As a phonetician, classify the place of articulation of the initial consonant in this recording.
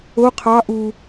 uvular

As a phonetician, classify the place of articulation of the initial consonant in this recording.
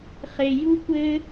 uvular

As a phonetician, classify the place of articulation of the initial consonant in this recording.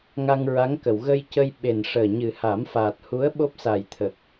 velar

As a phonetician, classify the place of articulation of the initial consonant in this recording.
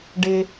retroflex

